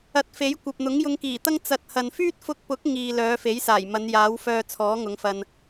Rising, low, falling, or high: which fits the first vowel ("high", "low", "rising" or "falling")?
rising